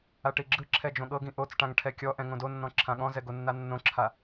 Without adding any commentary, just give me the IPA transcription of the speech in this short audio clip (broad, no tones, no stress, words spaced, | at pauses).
aʈiɡ͡ǁɯǁʰɛ d͡ʒõɠɤɡĩ ʔot͡sʈãŋ ʈʰɛkʲɔʔɛ̃ ŋõdonːɔ̃ ǁʰãɠɔ̃zɛ ɡonːanːõǁʰa